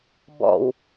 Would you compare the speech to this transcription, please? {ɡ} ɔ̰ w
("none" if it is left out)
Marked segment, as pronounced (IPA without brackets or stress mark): b